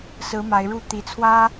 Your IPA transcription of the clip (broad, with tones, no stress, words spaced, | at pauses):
sɹ̩˨˦ ma˨˦ɪ̯ɻu˥˨ t̪i˨˩t͡sʰwä˦